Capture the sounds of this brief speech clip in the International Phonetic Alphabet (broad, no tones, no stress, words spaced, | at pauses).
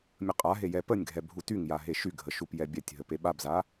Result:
mʲəqʼaɦe jɛpənʲɡʱɛ bʱutyŋja ɦeʃyɡʱə ʃupjɛbʲɛtʲɦə peɓabza